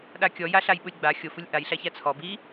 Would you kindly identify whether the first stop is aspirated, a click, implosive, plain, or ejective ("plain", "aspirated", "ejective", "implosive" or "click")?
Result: implosive